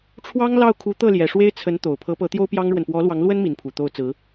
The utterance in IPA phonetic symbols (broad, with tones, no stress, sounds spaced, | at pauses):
ʈ͡ʂʰ w ɑ˥ ŋ l ɑ˥˩ ʊ̯ kʰ u˧˥ t̪ ɤ˥˩ l j ɛ˨˩ ʂ w e˥ ɪ̯ t͡sʰ ə˧˥ n t̪ o˨˩ ʊ̯ pʰ ɤ˧˥ p ɤ˧˥ t̪ j o˥ ʊ̯ p j ɑ˥ ŋ ɻ w ə˨ n p w ɔ˧˥ l w ɑ˧˥ ŋ l w ə˥ n m i˧˥ n pʰ u˨˩ t̪ o˥˩ ʊ̯ t͡s ɹ̩˧˥